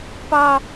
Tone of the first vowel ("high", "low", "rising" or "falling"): low